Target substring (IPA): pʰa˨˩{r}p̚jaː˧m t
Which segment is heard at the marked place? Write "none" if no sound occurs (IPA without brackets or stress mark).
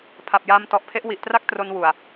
none